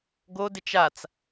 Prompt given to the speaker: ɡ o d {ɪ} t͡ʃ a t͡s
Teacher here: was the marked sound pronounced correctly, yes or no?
yes